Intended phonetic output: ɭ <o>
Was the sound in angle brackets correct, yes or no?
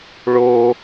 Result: yes